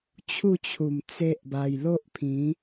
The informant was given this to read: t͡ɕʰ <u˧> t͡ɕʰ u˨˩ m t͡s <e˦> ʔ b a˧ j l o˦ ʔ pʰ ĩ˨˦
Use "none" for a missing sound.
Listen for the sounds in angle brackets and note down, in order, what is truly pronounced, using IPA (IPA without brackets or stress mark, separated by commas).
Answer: u˥˧, e˦